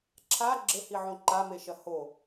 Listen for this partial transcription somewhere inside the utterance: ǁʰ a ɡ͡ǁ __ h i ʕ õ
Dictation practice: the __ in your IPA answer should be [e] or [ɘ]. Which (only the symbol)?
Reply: ɘ